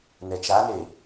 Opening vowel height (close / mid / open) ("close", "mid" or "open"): mid